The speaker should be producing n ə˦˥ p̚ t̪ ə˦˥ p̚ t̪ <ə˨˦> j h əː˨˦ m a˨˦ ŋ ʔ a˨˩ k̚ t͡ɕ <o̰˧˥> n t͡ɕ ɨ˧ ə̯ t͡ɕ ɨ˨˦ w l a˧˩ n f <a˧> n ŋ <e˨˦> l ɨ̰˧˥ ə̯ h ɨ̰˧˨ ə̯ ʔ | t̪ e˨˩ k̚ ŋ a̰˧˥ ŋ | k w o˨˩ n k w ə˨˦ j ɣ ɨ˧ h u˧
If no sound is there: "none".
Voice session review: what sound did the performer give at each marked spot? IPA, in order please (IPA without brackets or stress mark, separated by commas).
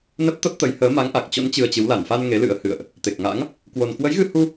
ə˨˦, o̰˧˥, a˧, e˨˦